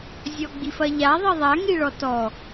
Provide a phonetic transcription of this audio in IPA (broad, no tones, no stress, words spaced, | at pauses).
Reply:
zʲɔɡ͡bifɐʎa ðˤiðˤaŋi ɭɔtɔ